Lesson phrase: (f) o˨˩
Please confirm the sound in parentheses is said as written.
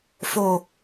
yes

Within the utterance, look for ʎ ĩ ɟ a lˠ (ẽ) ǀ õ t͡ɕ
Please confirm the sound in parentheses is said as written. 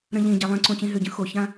yes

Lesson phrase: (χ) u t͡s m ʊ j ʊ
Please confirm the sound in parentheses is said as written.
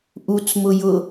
no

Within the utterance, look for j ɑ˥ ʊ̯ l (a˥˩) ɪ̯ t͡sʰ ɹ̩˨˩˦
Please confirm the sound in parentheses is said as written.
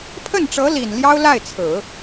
yes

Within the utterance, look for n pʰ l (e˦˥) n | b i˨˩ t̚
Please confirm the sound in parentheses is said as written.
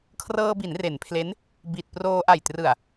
yes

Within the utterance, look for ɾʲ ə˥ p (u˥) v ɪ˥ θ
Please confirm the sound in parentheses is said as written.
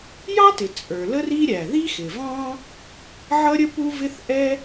yes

